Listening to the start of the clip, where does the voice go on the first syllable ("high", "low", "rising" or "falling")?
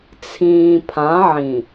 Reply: low